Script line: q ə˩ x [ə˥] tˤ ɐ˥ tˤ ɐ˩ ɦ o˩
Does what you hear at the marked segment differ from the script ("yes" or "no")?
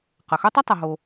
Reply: yes